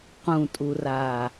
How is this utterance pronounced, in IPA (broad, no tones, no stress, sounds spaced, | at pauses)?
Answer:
q ũ tʼ u r aː